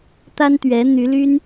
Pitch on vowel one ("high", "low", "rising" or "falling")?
high